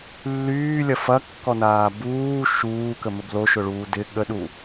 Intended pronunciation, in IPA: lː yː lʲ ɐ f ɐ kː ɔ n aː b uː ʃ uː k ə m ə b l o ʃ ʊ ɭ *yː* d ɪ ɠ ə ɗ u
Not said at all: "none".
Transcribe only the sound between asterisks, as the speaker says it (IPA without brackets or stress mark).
uː